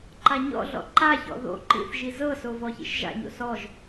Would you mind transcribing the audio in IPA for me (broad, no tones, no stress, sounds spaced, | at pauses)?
ǃ a ɲ ɔ̰ ɮ ɔ̰ ǃ a ç ɔ̰ ð o̰ ǃ ḭ θ ʒ i z ɤ s o v ɔ ç ḭ ʃ ʒ a̰ ɲ o̰ s ɔ ʒ